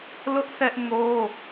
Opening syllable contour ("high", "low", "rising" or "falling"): high